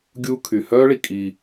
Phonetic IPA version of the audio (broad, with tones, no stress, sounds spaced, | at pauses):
ɡʲ uː˦ kʰ y˨ h œː˥ ɭ i˨ kʼ i˨